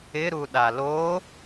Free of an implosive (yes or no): no